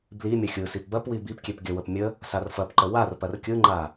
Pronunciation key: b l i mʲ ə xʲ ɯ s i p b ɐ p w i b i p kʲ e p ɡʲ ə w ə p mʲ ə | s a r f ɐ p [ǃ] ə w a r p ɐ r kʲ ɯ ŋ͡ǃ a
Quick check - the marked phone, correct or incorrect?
correct